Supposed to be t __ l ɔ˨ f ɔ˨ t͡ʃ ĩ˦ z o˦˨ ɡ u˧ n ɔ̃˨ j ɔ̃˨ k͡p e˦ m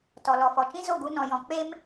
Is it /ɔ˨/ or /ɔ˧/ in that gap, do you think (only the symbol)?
ɔ˨